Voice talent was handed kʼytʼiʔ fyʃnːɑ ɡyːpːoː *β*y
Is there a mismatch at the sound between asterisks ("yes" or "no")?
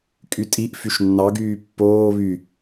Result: no